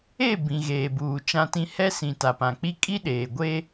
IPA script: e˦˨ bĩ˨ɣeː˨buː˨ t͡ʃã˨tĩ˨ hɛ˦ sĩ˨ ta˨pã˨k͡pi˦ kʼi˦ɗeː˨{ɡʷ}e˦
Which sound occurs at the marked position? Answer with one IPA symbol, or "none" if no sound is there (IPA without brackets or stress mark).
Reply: ɡʷ